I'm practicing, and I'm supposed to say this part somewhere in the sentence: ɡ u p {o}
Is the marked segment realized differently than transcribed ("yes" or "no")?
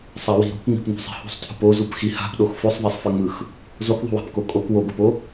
no